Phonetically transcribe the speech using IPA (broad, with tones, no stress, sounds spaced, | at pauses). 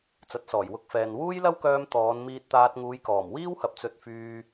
t͡s ɐ˨˥ t̚ s ɔː˨˩ j w ʊ˧ k̚ f ɛː˨ n w uː˥ j l ɐ˥ w k œː˧ m t̪ ɔː˨˧ n m iː˧ t̚ t̪ aː˧ t̚ ŋ uː˨˧ j k ɔː˨˩ m w iː˥ w h ɐ˨ p̚ t͡s ɵ˧ t̚ f yː˧